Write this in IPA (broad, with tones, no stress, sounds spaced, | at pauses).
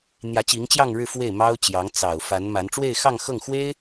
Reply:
n̪ j ä˧˥ t͡ɕ i˧˥ ŋ t͡ɕ j ɑ˥˧ ŋ ɻ ɻ̩˥˧ f w e˥˩ ɪ̯ m ɑ˥ ʊ̯ t͡ɕ j ɑ˧˥ ŋ t͡s ɑ˨˩ ʊ̯ f a˧˥ n m a˧˥ n ʈ͡ʂ w e˥˧ ɪ̯ x ɑ˥˧ ŋ x ɤ˥˩ ŋ x w e˥ ɪ̯